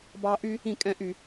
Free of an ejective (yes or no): no